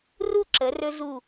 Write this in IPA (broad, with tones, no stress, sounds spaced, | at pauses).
r u˥˧ ǁ ə˩˧ r ɵ˧ z u˧˩